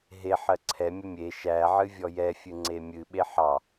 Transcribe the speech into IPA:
ɦe ħɜǀʰɛ mʲəmʲe ʃæʕɨ vʲɔjɛfʲɨ ŋ͡ǀemʲɨ ɓeħɑ

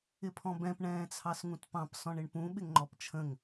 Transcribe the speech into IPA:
ɪpʰɔ̃bɛ̃p ɳɛ̃ːt͡sʰɑsŋũtpɑ̃p sɔ̃ɳɪɳpũ ɓɪŋŋ͡ǃɔpt͡ʃʰə̃ŋ

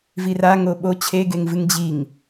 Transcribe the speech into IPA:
viraŋo ɓo t͡ɕʰeɡeŋvɨŋ d͡ʑiŋ

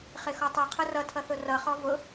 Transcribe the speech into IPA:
χɪxɔtˤʌ qʰʊrʌtʰʌθʊ rʌχɔ vʊ

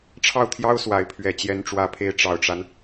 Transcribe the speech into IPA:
ʈ͡ʂʰɑ˥˩ʊ̯t̪ʰjɑ˥ʊ̯ swa˧˥ɪ̯pʰɥɛ˨˩ t͡ɕjɛ˧˥nʈ͡ʂwä˧˥pʰe˧˥ɪ̯ ʈ͡ʂɑ˨˩ʊ̯ʈ͡ʂa˦n

